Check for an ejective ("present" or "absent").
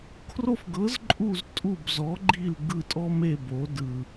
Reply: present